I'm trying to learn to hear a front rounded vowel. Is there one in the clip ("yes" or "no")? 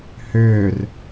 yes